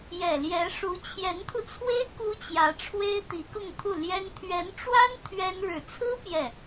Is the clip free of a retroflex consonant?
no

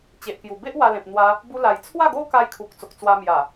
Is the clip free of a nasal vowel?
no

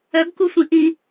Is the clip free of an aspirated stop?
yes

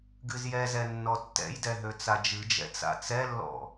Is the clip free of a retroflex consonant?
yes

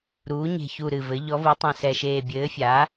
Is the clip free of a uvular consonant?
yes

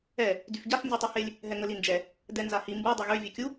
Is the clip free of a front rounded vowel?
no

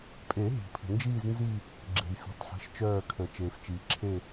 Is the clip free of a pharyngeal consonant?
no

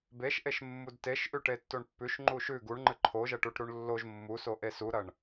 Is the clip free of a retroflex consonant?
no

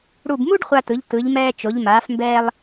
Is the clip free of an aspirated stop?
yes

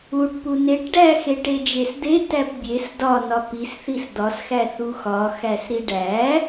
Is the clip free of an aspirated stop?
yes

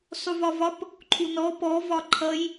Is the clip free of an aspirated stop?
no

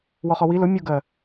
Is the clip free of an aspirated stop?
yes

